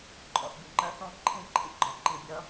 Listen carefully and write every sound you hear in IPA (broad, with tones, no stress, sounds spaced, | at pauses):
ǃʼ ɔ̰˨ θ bʲ ʌ˨ ŋ͡ǃ ɜ˦ θ ɔ̃˦ ǃʰ ĩ˦˨ ǃʰ ḭ˦ ɡ͡ǃ ɒ˨ ǃ i˨ bʲ ʌ˦